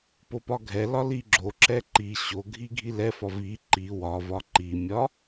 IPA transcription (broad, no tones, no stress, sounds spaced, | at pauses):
p o p ɒ ɡʱ ɛ l ɒ l i ɡ͡ǁ o ǁ ɛ ǃ i ɕ o ɡʱ i ɡʱ i l ɛ f ɒ v i ǃ i w ɒ v ɒ ǃ i mʲ ɒ